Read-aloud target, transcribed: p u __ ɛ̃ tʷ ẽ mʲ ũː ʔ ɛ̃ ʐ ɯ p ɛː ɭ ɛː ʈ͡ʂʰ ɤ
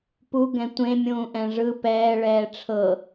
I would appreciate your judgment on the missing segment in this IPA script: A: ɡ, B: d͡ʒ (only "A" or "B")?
A